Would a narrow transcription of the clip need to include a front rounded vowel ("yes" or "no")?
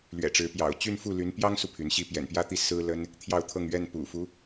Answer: yes